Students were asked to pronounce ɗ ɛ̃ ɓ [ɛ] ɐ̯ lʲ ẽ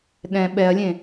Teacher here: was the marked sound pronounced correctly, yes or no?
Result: yes